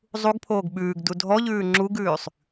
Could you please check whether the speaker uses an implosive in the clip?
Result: yes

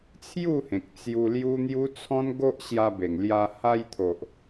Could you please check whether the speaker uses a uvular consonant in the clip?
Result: no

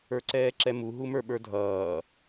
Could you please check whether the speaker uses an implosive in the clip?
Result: yes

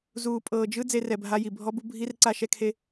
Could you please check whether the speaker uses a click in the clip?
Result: yes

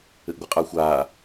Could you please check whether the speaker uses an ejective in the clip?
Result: yes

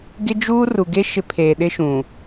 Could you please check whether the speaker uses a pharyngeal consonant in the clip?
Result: no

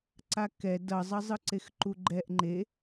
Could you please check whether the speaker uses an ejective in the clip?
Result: no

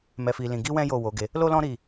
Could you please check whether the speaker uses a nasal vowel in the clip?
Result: yes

